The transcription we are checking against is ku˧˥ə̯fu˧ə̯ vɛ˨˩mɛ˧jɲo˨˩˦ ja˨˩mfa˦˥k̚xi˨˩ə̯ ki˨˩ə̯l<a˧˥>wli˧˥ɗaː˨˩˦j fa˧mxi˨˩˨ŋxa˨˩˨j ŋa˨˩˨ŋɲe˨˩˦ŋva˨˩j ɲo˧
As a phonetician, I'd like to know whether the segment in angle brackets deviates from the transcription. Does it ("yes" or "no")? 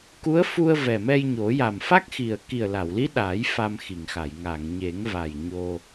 yes